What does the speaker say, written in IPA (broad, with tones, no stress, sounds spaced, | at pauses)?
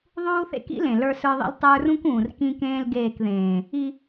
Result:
ðˤ uː˦ θ ḛ˦ k ḭ˦ l ẽ˨ l ə˞˦ s ə˞˦ ðˤ ḭ˦ l tˤ ə˞˦ r ũ˦ k ũː˨ r k ĩ˦ k ẽː˦ l ɡ eː˦˨ k ð ẽː˨ | i˦